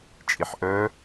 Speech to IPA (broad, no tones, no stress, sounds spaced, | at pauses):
t͡ʃʼ i ħ ʔ œ